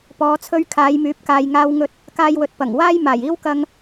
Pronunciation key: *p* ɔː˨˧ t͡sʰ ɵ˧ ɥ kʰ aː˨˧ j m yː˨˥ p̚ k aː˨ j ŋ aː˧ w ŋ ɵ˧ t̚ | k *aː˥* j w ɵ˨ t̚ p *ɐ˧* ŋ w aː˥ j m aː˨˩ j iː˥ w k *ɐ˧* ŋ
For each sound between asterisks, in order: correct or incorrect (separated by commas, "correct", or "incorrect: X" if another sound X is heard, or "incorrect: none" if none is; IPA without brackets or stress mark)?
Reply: correct, incorrect: aː˧, incorrect: ɐ˨˩, correct